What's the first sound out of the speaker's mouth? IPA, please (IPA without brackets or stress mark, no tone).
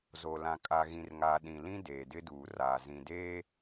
z